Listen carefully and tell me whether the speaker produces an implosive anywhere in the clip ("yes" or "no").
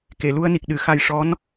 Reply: yes